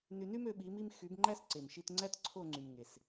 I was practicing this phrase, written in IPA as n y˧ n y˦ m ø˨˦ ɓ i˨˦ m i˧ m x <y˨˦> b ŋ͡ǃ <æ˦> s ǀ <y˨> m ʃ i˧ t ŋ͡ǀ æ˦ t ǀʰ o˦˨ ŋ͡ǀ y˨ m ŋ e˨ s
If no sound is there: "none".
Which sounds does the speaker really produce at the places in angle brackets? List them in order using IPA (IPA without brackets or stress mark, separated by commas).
y˨˦, æ˦, e˨